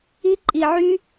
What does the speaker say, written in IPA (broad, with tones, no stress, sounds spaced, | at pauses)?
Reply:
i˦ ǃʼ i˧ ʕ y˦